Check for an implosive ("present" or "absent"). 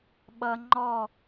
present